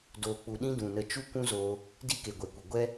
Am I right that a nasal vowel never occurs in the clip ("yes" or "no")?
no